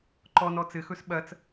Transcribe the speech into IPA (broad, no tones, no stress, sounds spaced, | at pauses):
ǃ ɔ n ɔ t͡s ɘ x ɵ s ɓ ɐ t͡s